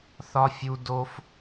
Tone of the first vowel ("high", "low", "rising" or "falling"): high